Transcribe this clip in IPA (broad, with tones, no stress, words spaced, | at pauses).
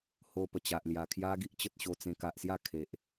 ho˧pə˨˩t͡ɕa˨ʔ lja˨˩kʰja˦ɡi˦ʔ t͡ɕə˦t̚ɕo˧t͡sẽ˧ ka˨ʔsja˥˧ kʰe˨ʔ